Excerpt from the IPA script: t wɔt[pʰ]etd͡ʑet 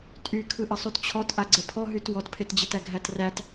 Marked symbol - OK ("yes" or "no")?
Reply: yes